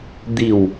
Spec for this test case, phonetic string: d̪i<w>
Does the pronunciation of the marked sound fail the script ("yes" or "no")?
no